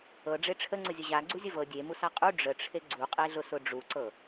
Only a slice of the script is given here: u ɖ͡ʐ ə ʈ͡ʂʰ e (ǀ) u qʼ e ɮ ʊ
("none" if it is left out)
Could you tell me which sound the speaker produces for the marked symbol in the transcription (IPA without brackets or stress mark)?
ɡ͡ǀ